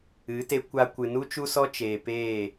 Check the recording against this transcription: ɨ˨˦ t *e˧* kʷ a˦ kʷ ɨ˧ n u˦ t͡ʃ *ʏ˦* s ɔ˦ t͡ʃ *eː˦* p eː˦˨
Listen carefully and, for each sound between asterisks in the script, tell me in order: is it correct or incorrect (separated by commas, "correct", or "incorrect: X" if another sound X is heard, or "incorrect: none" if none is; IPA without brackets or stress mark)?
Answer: correct, incorrect: u˦, incorrect: eː˨